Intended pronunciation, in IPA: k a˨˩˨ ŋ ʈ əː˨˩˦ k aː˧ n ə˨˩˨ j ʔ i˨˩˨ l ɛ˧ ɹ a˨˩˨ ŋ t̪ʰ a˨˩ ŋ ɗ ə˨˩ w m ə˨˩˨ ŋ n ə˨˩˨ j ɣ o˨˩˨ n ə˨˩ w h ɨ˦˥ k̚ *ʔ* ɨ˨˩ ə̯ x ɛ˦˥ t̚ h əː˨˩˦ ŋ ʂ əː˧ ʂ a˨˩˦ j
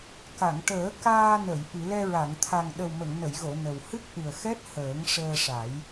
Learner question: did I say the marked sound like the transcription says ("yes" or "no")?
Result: yes